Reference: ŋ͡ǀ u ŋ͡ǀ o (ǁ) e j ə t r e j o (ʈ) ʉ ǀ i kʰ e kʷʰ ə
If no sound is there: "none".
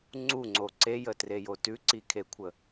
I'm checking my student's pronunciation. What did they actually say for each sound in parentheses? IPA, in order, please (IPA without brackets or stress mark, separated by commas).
ǀ, t